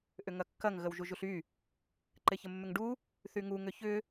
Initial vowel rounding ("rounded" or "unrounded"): rounded